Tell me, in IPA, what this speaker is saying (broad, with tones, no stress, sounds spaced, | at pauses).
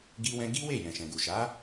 ɡ i˦ w ɛ̃˦ ɡ i˦ w e˦˨ j ɛ̃˨ ʃ ɛ̃˨ ɡ u˨ ʃ a˨˦